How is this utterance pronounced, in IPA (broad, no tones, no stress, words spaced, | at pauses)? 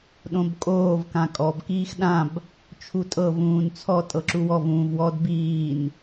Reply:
ɗõbkʼoːv kãkʼɔb kiːxɗãb | t͡ʃʰutʼɤ vũːnt͡sʰɔ tʼɤǁuwɔv ũːvwɔd biːn